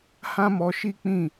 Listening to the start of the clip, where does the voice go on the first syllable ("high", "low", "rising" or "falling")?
high